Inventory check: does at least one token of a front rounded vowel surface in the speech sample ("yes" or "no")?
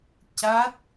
no